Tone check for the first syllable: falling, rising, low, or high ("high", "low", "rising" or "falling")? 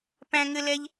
high